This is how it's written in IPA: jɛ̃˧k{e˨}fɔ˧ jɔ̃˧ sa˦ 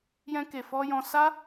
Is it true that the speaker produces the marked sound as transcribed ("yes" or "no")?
yes